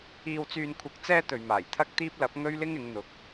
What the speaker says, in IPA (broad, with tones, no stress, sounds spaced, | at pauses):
iː˧ w t͡s yː˧ n kʷʰ ɐ˧ k̚ t͡s ɛː˥ t̪ ɵ˨ ɥ m aː˨˩ j t̪ʰ ɐ˥ k̚ t̪ iː˥ p̚ l ɐ˨˥ p̚ ŋ ɵ˥ ɥ l ɪ˥ ŋ ɪ˨˧ ŋ n̪ ʊ˨˥ k̚